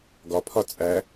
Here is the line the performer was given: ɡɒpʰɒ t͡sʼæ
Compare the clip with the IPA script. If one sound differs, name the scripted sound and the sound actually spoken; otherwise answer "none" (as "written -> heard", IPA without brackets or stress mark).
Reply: none